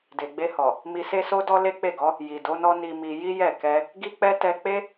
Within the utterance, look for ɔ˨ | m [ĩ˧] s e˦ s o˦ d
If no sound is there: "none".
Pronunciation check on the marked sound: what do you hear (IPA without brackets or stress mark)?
i˧